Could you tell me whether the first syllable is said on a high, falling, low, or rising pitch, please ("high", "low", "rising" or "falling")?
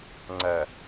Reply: low